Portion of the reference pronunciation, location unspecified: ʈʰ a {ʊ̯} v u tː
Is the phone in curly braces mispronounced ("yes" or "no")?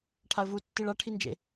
yes